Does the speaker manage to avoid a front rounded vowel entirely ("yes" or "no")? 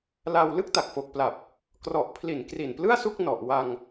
yes